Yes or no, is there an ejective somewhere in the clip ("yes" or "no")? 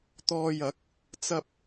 no